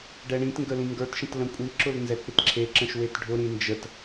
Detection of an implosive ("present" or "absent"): absent